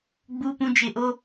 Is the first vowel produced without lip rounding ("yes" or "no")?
no